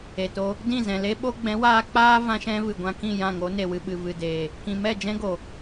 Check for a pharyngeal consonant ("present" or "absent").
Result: absent